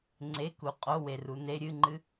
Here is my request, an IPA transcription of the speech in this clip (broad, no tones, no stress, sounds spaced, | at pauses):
ŋ͡ǀ e k u qʼ o w e r u n e ɾʲ ɨ ŋ͡ǃ ɨ